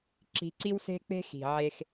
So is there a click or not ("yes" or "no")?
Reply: yes